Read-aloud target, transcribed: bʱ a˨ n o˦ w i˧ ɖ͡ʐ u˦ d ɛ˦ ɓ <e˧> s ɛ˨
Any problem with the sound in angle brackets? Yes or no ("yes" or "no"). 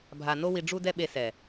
no